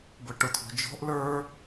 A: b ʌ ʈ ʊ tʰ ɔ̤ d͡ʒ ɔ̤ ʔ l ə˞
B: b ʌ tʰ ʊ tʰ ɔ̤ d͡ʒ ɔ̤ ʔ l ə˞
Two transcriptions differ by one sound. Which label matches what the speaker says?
A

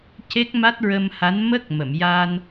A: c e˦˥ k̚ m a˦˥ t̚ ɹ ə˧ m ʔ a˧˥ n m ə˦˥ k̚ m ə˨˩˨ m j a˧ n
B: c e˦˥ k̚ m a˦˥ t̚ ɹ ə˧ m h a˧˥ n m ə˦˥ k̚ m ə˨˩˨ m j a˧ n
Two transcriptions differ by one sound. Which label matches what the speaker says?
B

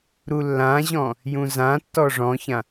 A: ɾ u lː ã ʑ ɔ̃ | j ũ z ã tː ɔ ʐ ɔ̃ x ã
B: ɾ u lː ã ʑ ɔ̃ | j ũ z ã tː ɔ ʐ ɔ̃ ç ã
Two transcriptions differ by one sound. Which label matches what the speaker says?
B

